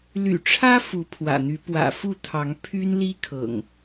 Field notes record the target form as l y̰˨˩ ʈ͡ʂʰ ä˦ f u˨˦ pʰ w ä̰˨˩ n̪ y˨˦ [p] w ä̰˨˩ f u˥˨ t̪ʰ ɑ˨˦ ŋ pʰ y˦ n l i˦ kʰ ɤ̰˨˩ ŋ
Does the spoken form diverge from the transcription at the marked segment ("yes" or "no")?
no